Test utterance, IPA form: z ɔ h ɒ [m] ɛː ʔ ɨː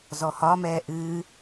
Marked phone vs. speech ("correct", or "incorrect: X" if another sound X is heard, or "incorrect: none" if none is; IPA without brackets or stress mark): correct